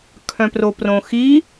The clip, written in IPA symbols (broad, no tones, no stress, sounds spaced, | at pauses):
kʰ œ̃ p r o p r õ x i